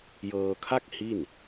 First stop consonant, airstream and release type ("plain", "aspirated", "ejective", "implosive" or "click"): aspirated